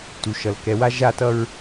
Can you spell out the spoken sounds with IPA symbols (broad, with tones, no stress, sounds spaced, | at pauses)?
t u˩ ʃ ʌ˩ l k ɛ˨ w a˥ ʒ a˦ t ʌ˦ ɹ